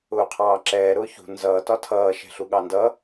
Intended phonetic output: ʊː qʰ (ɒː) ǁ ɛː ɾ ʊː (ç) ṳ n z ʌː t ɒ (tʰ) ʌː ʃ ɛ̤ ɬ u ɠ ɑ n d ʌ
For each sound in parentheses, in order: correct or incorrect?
incorrect, correct, correct

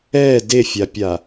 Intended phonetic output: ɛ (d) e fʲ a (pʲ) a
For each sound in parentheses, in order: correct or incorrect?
correct, correct

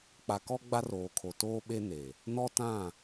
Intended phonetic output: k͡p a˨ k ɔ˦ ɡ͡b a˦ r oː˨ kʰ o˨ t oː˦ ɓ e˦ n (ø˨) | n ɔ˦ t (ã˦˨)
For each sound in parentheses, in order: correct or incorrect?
incorrect, correct

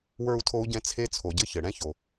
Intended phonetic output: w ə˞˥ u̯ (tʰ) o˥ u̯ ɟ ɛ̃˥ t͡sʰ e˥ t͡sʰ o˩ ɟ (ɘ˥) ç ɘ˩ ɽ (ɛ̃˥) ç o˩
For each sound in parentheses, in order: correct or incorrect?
correct, correct, correct

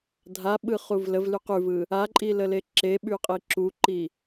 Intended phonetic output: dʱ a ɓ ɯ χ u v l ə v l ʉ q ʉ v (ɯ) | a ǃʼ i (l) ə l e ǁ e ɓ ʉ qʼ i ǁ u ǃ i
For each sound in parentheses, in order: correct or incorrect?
correct, correct

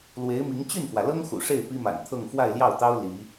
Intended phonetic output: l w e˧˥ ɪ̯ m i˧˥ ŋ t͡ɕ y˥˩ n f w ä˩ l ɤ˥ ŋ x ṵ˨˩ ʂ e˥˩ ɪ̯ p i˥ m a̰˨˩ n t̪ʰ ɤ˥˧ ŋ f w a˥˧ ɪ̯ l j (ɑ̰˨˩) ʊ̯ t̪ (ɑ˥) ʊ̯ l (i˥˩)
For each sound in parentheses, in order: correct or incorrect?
incorrect, correct, incorrect

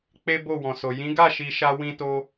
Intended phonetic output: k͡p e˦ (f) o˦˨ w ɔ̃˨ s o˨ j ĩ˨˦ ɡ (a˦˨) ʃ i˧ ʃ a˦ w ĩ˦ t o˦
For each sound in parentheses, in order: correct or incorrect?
incorrect, correct

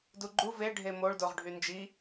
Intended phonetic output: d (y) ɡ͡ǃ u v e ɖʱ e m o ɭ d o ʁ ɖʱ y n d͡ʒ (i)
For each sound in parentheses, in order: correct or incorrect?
incorrect, correct

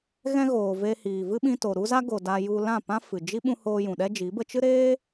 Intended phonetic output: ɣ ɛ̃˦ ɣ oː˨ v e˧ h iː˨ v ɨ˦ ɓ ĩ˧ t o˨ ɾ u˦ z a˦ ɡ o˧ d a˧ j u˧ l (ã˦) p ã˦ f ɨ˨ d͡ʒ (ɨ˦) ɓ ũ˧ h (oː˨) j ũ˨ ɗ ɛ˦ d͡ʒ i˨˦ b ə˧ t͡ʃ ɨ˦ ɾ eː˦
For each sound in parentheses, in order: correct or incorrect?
incorrect, incorrect, incorrect

